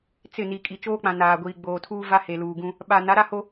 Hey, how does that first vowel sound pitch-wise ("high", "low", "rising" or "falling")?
falling